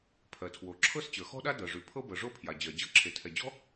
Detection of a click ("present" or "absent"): present